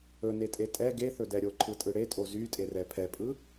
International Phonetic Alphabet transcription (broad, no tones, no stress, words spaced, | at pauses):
ɵnetʼe tʼɛ ɡeθɵdɛ ɾʲoǃʰɯtʼɯ ɽetʼo zytʼerɛ pʰɛpʼɯ